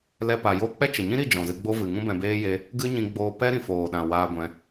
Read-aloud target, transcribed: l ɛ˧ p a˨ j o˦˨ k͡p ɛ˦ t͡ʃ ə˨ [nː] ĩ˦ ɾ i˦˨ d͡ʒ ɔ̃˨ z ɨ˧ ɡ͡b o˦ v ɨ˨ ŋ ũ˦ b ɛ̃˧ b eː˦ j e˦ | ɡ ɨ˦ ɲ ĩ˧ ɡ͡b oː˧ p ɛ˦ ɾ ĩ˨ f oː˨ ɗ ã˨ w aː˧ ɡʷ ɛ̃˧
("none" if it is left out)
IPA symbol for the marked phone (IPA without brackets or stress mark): ɲ